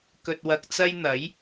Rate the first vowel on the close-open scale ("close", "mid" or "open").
mid